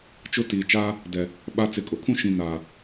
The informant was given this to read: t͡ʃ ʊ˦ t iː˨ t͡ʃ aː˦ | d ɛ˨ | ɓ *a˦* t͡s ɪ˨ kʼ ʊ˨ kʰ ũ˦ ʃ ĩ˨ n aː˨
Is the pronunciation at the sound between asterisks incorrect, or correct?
correct